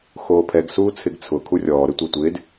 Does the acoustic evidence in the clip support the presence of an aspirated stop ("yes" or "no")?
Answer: yes